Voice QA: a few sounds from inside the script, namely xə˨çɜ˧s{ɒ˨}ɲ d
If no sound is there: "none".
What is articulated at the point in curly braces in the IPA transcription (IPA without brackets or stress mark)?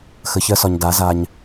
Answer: ɒ˨